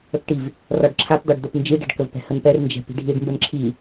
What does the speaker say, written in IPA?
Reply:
ə k ʈ i v | r ɒ ɖ ǁʰ a p d̪ ɒ ɖ d̪ œ p n d͡ʒ i ɖ ɛ̤ ɖ k ə v p ɛ̤ h ə n p ɛ r n d͡ʒ ɛ̤ p i̤ ɖʱ i ɖ m b ə n ǁʰ i

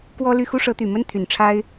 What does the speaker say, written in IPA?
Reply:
k w ɔ˥ l y˥˩ x u˥ ʂ ɤ˧˥ t̪ y˨˩ m ə˥ n t̪ʰ y˨˩ n ʈ͡ʂʰ a˥ ɪ̯

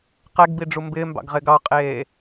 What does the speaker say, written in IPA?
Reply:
q ɛ ɡ b i ɖ͡ʐ u m b ɪː m b ɑ̰ ɡ ʁ ɪː ɡ ɑ qʼ eː

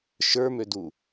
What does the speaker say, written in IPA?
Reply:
ʃ ə˞ m ø d u

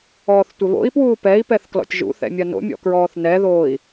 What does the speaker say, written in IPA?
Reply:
ɔː θ tʷ ɘ β o̰ i̯ p w uː p ɛ i̯ p ɛ θ k l ɔ̰ tʲ ʒ ṵ θ ɛ̰ mʲ ɐ n o̰ mʲ ɔ̰ k ɹ ɔː θ n ɛ ð oː i̯

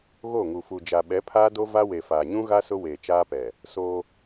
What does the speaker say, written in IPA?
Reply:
ɣ o˦˨ ŋ u˨ f u˨ d͡ʒ a˨ ɓ ɛ˨˦ pʰ aː˦ d o˦ v a˦ w e˨ f aː˨ ɲ ũ˦ ɣ a˦ s ʊ˦ w eː˨ t͡ʃ aː˦ p ɛ˨ | s o˦

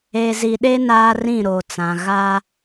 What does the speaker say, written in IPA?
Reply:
e˨ z i˨ ɗ e˦ n aː˦ r ĩ˦˨ ɾ o˨ t͡s ã˨ ɣ a˦

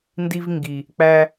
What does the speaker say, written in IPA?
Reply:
n d i˧ v ŋ ɡ i˨ | k͡p æ˧

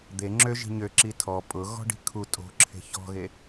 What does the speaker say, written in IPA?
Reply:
d̪ e ŋ͡ǁ ø ʒ i̤ ɲ ø ǁ i tʰ ɔ pʼ ʊ ɣ ɔ̤ ɖ i̤ kʰ u tʼ o̤ ǁʰ e̤ ç ɔ̤ ɣ e

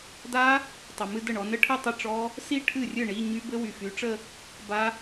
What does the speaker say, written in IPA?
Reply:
d a˦˥ | tˤ ə˨ m ɨ˥˧ d ə˥˩ ɳ ɔ˨˦ n ə˦˥ ʈʰ ɨ˥˧ tˤ ə˥˧ ʈ͡ʂ ɔ˦˥ | s i˥˧ ʈʰ ɨ˥˩ rʲ ɨ˥˩ ɳ i˧˥˧ ɲ y˦˥ b ɘ˦˥ w y˨ f y˨˦ ʈ͡ʂ ə˥˧ | b a˦˥

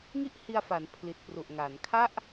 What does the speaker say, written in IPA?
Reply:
ŋ i˥˩ ʔ h i˧ a̯ f a˩˦ n pʰ l i˨˩ t̚ p r u˨˩ ʔ ŋ a˩˦ n kʰ a˥˩ ʔ

